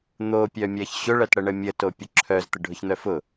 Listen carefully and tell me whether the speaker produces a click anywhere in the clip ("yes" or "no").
yes